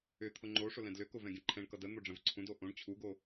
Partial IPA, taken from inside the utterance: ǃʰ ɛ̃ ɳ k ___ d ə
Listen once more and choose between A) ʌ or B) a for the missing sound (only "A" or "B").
A